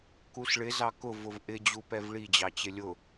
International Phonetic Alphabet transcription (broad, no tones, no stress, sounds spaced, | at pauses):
k u s ɭ ɪ z ɑ k ʊ v ʊ v ʔ ɪ d͡ʑ u p ɛ v ɭ i d͡ʑ ɑ t͡ɕ ɪ lʲ ʊ